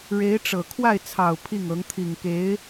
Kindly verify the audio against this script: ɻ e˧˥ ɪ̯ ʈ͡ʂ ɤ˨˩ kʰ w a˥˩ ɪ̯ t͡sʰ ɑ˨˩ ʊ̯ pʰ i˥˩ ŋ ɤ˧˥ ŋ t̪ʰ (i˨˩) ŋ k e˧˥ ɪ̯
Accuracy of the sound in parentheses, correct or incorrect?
correct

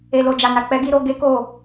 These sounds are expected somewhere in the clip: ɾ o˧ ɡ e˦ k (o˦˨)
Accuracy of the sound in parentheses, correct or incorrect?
correct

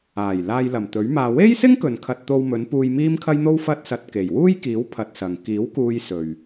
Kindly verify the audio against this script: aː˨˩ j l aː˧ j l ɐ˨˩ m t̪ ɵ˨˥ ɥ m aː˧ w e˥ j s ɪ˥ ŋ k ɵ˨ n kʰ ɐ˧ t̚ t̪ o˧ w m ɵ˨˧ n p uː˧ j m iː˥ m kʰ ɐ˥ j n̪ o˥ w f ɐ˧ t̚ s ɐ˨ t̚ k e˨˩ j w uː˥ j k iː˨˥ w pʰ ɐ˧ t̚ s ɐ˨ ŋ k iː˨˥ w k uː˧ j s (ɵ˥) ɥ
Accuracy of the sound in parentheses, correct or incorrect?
incorrect: ɵ˨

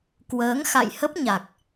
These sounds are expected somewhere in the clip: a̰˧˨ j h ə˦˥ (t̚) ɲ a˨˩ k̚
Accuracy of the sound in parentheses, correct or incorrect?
incorrect: p̚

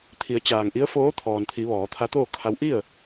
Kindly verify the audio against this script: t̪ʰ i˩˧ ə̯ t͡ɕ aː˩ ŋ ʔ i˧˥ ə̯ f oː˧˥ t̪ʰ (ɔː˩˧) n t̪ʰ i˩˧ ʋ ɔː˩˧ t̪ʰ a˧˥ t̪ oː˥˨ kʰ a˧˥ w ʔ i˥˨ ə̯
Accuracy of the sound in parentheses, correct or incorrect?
incorrect: ɔː˩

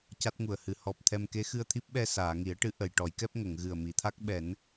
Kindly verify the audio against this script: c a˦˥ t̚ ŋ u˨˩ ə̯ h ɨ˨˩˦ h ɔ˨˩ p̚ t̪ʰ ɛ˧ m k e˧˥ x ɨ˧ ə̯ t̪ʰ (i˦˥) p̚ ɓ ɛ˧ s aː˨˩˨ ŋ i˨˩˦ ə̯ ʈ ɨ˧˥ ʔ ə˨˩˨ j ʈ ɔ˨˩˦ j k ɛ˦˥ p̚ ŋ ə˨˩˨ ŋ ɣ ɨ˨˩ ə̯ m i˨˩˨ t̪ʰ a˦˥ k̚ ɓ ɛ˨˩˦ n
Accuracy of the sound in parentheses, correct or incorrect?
correct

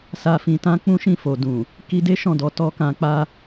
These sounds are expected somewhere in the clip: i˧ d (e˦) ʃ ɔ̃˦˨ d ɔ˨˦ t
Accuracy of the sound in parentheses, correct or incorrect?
correct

